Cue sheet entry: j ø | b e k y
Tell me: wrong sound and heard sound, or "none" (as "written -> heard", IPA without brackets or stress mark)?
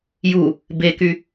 ø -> u